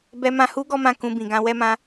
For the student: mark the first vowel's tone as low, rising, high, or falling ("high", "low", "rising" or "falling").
low